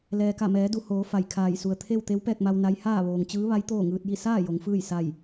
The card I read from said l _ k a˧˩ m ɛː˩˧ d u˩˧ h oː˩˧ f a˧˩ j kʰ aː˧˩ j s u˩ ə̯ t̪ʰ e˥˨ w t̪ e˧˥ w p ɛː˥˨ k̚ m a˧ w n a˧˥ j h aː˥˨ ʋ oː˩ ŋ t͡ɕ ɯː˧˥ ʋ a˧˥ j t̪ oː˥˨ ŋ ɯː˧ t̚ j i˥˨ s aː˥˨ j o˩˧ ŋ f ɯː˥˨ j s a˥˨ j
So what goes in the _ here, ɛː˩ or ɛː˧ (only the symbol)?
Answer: ɛː˩